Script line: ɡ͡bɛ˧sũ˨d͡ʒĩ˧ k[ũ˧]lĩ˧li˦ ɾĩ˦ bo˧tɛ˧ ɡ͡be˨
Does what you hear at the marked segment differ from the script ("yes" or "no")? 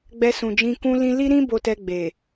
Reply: no